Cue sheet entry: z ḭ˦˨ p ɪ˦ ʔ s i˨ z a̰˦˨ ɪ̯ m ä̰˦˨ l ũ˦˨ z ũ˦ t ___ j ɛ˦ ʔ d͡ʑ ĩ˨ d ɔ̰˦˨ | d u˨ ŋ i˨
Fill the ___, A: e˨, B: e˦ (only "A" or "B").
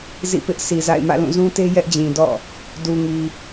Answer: B